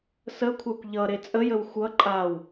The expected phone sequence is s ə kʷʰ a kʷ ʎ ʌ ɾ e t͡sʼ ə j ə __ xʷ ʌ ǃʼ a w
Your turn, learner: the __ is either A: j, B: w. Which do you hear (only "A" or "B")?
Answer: B